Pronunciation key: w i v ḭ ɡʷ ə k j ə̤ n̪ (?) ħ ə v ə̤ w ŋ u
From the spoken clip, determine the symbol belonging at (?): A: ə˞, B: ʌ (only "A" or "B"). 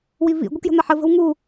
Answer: B